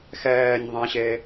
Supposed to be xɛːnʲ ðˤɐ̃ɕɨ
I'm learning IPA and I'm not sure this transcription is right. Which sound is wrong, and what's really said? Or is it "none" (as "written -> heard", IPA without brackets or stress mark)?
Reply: ɨ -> e